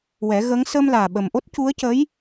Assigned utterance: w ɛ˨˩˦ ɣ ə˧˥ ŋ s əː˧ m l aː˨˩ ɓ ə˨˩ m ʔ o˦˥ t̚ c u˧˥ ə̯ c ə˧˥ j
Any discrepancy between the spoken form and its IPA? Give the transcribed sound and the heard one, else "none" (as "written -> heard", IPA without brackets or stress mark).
none